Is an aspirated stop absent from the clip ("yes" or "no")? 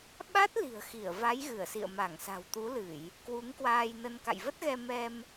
yes